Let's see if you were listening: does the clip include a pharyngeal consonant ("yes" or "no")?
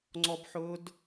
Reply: yes